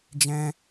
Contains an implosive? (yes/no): no